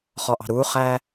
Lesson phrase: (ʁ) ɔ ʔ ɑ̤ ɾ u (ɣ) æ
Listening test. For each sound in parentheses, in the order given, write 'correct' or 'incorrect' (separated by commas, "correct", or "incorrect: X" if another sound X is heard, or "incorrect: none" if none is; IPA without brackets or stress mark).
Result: incorrect: χ, incorrect: χ